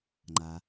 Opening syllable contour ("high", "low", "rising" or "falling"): low